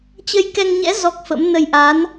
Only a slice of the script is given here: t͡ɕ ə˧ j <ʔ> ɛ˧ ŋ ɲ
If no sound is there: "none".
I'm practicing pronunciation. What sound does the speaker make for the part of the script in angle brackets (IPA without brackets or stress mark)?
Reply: k